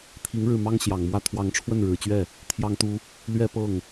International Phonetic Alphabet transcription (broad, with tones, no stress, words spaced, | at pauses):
t̪ʰi˧˥ŋɻɻ̩˥˩mɑ˥ŋ ɕjɑ˨˩ŋmwä˥˩ t̪ʰwɑ˧˥ŋʈ͡ʂʰwə˥˩nɻɻ̩˨˩t͡ɕɥɛ˥˩ | t̪ʰjɑ˥ŋt̪u˥ | lɥɛ˥ pɤ˥˩ŋ